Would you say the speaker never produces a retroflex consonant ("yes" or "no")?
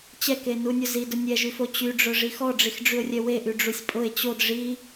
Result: no